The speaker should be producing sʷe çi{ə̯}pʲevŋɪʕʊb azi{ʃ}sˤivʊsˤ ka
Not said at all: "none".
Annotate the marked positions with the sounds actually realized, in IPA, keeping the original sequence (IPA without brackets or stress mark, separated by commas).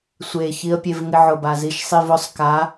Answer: ə̯, ʃ